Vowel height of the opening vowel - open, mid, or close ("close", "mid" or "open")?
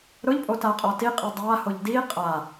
close